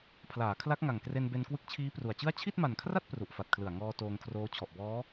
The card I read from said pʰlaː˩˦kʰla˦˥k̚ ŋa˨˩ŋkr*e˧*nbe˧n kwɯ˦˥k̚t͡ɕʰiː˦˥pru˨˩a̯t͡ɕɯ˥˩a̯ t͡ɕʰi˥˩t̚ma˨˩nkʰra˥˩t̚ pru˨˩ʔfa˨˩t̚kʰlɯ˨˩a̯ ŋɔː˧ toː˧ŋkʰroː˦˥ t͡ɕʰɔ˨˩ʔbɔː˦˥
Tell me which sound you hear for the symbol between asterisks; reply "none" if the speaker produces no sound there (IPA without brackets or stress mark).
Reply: e˧